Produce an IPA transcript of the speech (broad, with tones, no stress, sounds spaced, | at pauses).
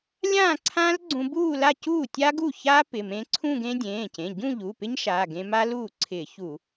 lʲ ãː˥˧ ǀʰ ãː˦˥ l ɡ͡ǀ ũ˧ b uː˥˧ l a˥˧ c uː˥˩ tʲ a˦˥ ɡ u˥˩ ç aː˦˥ p ɪ˩˧˩ m ẽː˧ ǀʰ ũ˥˧ ɡ ẽ˦˥ dʲ ẽː˩˧˩ c ẽ˩˧˩ ɟ ũ˥˧ ʎ u˩˧˩ p ɪ˦˥ ɲ ʃ aː˩˧˩ ɡ ẽ˧ m a˦˥ l uː˥˩ ǀʰ ɪː˧˩˧ ç u˧˩˧